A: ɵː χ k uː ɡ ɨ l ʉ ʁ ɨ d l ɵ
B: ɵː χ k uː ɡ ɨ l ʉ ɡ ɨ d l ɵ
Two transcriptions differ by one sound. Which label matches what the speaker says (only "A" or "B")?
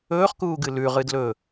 A